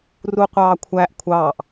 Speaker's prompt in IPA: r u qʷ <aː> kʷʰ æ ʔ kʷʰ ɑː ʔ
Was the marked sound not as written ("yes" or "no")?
yes